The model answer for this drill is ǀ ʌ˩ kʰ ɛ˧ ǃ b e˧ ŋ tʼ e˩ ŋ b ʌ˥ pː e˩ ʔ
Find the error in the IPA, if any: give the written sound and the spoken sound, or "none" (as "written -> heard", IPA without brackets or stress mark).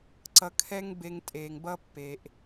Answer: ǃ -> ŋ